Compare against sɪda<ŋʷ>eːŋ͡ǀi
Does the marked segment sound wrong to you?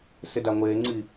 no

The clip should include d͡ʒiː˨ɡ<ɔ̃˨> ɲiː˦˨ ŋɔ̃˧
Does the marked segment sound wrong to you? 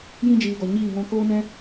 yes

